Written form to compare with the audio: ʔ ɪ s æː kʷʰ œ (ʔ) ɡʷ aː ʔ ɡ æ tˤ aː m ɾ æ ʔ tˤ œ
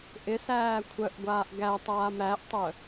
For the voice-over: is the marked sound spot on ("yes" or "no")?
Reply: yes